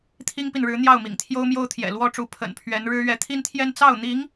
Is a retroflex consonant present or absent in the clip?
present